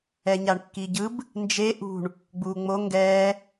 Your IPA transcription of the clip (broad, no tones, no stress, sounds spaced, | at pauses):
ɛ ɲ a ɳ kː i ɟ ɯ b | n d͡ʒ e ʔ ṳ ɳ | ɡ͡b uː ŋ͡m o ŋ ɡ ɛː